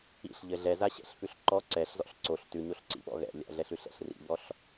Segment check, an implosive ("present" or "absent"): present